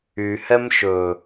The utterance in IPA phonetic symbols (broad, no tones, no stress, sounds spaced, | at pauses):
y h ɛ m ʃ ɵ